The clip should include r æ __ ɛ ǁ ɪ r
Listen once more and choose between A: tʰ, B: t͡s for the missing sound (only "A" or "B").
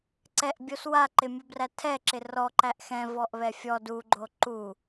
A